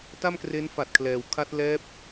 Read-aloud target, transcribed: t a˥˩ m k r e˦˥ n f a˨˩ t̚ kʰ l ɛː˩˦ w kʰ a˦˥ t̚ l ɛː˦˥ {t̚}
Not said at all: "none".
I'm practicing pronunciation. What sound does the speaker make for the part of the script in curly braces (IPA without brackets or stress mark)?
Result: p̚